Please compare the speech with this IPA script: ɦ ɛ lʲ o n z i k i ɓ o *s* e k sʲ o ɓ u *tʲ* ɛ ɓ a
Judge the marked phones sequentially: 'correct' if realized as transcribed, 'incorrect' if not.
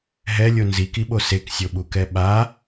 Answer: correct, incorrect

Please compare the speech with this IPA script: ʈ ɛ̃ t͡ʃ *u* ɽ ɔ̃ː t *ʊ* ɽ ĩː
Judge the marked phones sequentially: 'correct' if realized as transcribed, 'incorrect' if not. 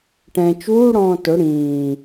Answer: incorrect, correct

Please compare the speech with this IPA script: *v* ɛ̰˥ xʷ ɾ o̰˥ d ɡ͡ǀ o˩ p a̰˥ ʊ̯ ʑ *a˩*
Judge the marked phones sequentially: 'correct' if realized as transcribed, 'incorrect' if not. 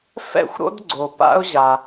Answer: incorrect, correct

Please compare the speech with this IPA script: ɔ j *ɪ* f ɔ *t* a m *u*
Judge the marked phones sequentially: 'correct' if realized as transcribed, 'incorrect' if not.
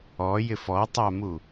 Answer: correct, incorrect, correct

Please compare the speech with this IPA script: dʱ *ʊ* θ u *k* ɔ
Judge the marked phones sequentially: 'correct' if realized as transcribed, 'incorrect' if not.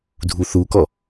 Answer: incorrect, correct

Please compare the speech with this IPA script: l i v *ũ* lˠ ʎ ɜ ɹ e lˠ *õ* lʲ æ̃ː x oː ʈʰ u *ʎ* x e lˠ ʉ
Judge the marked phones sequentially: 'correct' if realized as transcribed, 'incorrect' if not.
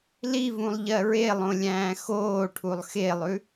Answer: correct, correct, incorrect

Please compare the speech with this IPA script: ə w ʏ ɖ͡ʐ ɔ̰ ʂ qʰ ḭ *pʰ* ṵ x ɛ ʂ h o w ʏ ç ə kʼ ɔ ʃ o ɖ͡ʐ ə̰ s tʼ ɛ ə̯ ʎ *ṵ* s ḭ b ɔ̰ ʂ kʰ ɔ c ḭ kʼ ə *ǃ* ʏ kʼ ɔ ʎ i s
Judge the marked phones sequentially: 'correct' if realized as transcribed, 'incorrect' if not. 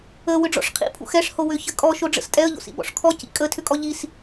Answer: correct, incorrect, incorrect

